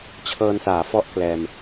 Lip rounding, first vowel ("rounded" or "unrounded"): unrounded